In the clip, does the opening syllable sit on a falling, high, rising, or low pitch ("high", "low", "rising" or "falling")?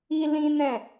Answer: high